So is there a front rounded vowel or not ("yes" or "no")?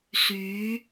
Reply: yes